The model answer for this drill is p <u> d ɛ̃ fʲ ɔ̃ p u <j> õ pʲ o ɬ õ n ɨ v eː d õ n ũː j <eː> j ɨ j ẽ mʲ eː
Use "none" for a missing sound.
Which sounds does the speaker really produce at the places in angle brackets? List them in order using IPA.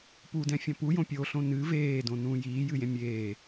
u, j, iː

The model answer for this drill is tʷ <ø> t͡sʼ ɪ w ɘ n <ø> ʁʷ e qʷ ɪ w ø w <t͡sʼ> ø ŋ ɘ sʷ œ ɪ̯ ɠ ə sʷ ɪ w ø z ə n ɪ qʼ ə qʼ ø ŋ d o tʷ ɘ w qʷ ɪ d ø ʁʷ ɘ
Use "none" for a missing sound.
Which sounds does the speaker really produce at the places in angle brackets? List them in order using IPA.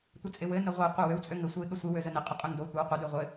ɘ, ə, t͡sʼ

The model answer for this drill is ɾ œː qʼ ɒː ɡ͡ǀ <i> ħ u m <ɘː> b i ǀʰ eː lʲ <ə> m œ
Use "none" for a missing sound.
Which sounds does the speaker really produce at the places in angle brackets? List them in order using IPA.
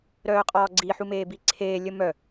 i, eː, ə

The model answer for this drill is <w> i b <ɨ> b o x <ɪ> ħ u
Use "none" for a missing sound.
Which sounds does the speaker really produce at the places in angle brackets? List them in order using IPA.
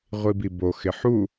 ʁʷ, i, ɪ

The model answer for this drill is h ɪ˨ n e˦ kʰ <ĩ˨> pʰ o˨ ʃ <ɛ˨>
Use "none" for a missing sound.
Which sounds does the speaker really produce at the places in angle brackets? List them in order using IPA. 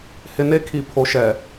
i˨, ɛ˨

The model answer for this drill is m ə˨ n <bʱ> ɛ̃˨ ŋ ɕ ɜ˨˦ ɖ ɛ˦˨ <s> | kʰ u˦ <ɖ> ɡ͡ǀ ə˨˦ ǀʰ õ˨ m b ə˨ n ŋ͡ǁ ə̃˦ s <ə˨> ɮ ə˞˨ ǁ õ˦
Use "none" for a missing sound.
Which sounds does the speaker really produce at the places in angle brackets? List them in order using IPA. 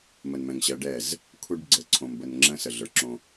m, z, ɖ, ə˨

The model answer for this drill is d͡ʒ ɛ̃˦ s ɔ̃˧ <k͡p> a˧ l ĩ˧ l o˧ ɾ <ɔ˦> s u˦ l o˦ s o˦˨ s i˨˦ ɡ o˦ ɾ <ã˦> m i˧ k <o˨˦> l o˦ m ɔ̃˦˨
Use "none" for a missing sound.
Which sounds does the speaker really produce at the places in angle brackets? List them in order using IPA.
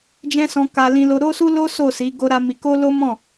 k, o˦, a˦, o˦

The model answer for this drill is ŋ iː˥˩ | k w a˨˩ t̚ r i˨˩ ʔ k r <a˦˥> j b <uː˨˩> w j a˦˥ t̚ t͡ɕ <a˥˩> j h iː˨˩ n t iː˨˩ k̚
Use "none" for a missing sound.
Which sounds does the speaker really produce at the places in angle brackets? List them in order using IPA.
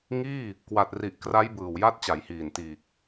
a˦˥, ɯː˨˩, a˩˦

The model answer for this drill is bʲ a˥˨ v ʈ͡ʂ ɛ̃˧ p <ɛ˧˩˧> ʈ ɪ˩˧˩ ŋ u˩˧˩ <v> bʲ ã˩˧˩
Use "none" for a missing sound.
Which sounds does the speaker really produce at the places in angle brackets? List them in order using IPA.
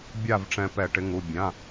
ɛ˧˩˧, none

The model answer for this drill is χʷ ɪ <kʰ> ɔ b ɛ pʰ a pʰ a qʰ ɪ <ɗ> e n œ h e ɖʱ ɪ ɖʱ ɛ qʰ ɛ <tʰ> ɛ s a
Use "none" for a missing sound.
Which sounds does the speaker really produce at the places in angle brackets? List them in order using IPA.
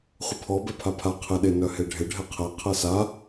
pʰ, ɗ, qʰ

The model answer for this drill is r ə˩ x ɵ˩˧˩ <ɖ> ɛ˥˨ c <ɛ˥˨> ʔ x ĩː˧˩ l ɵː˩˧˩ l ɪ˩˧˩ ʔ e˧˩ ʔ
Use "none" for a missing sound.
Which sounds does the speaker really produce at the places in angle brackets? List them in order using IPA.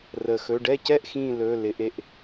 ɖ, ɛ˥˨

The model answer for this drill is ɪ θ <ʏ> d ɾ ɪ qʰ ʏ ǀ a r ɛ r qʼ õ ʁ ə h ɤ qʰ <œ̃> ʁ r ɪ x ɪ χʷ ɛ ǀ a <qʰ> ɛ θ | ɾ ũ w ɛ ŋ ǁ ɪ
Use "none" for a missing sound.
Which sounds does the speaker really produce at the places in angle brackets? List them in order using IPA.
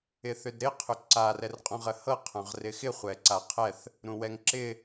ʏ, œ̃, qʰ

